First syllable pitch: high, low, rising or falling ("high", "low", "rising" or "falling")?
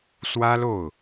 high